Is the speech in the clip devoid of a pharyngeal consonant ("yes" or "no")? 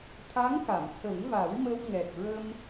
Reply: yes